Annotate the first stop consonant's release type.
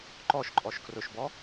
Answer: click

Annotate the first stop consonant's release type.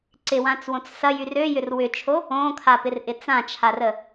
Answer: click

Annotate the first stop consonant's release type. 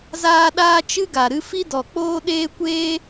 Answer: implosive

